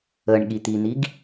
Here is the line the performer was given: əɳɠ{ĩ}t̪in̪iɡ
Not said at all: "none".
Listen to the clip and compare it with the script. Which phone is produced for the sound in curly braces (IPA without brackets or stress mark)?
i